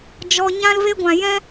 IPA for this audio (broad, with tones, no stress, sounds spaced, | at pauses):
d͡ʒ ɔ˦ ɲ ã˦ l v e˦ ɡʷ ã˧ j ɛ̃˦